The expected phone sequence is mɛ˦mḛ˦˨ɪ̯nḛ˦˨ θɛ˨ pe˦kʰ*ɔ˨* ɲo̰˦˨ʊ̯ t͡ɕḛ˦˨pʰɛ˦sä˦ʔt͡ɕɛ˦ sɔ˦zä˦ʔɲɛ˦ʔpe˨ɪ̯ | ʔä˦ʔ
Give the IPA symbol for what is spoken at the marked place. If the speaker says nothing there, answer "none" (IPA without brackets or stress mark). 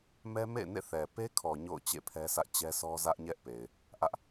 ɔ˨